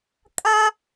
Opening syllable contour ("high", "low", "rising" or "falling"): high